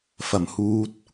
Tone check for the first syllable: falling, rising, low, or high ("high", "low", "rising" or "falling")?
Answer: low